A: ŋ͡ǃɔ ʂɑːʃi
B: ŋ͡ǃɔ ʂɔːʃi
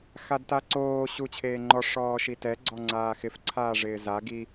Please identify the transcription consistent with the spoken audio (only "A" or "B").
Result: B